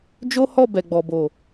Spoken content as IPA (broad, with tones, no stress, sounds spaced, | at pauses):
d͡ʒ o˦ h ɔ˦˨ b ɛ˨ ɡ͡b ɔ˨ b o˨